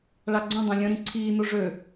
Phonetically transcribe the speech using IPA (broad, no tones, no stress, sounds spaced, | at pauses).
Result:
ɭ a ɡ͡ǀ õ dˤ ẽ lʲ ə̃ ɾ ĩ ǀʰ iː n o ʐ ø